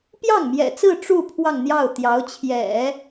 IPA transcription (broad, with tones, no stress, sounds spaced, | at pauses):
p j ɑ˥˩ ŋ m j ɛ̰˨˩ t͡s ɹ̩˥˧ ʈ͡ʂ u˥˧ pʰ w ɑ˥˧ ŋ n̪ j ɑ˥˩ ʊ̯ t̪ j ɑ˧˥ ʊ̯ t͡ɕʰ j ɛ̰˨˩˦